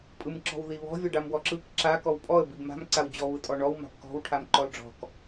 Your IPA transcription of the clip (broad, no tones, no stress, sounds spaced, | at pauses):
pʼ ɯ m ǁ ɔ̤ w ð i β ɔ̤ vʲ ɔ ɖ a m w ɔ ǁ ɯ k ǁ a k ɔ w pʼ ɔ ə̯ b i b m a̤ m ǀ a w d͡ʑ ɔ β ɯ tʼ ɔ ɳ ɔ w m a̤ b k ɔ̤ w ʈʰ a m ǃ ɔ l ɖ͡ʐ ɔ̤ k